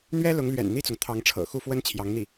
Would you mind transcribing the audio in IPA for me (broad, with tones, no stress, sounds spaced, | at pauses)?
n̪ ɥ ɛ˥ l ʊ˧˥ ŋ l ɥ ɛ̰˨˩ n n̪ i˥˩ t͡s ʊ˩ ŋ t̪ʰ ɑ˧˥ ŋ ʈ͡ʂʰ ɤ̰˨˩ x u˥˩ f w ə˥ n t͡ɕʰ j ɑ˧˥ ŋ n̪ i˥˩